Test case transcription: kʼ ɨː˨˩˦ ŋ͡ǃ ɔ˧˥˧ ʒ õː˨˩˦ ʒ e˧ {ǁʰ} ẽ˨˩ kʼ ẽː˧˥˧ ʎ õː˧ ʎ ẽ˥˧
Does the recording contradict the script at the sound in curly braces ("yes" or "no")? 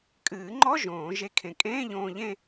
yes